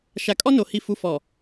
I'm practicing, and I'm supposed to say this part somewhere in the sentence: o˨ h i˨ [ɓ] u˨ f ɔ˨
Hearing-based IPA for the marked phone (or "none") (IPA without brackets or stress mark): f